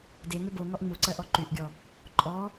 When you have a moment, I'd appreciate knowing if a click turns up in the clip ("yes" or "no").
yes